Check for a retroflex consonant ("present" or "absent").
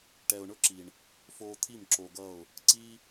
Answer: present